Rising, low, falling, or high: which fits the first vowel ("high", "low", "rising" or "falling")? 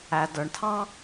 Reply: low